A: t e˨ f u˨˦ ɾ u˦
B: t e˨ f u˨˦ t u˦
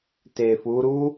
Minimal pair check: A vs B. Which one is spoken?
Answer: A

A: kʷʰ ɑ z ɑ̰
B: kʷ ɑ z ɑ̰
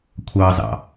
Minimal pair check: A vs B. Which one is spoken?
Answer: A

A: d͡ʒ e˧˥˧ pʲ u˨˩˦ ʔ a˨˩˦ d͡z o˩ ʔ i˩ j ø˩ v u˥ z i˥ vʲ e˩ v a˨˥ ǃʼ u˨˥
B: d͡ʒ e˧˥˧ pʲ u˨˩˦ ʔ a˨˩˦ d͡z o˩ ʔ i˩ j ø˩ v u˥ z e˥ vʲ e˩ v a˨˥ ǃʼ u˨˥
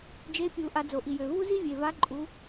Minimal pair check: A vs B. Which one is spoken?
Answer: A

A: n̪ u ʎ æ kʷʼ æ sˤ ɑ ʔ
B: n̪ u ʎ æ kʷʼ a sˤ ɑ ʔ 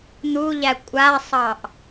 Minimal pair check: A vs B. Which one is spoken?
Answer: B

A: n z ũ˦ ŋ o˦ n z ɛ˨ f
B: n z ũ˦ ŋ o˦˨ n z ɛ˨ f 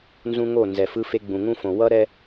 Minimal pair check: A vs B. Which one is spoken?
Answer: B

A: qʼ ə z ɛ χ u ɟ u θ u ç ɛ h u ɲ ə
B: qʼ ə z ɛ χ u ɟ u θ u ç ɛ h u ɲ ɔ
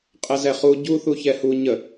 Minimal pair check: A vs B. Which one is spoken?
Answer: A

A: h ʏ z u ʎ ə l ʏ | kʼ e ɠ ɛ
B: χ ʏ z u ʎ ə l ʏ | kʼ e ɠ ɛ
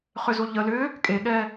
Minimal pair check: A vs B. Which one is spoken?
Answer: B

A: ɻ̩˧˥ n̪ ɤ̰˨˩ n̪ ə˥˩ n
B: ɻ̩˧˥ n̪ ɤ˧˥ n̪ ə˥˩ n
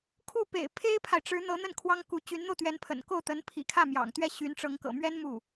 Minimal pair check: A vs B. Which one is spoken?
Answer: B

